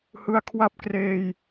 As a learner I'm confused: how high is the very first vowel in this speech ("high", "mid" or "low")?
high